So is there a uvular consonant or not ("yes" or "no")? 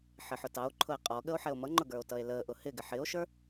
yes